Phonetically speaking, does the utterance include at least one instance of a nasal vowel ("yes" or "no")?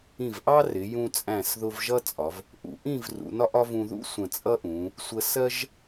yes